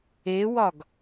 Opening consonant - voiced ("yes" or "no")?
yes